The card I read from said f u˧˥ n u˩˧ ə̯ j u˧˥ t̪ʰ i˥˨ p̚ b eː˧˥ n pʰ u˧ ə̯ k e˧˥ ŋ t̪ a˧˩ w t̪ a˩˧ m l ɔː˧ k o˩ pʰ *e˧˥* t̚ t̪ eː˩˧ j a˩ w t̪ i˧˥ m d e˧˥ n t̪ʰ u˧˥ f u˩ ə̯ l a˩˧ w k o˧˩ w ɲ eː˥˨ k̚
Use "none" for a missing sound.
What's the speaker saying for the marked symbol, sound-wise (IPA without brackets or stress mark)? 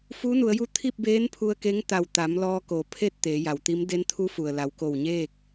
e˥˨